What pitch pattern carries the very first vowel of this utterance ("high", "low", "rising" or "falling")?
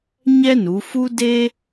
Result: high